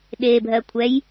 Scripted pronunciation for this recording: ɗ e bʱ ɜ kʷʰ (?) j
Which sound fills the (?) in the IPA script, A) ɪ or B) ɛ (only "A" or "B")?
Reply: B